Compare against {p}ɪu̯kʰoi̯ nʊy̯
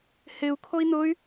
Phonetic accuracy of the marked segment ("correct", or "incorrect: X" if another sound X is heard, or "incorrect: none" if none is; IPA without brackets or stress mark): incorrect: h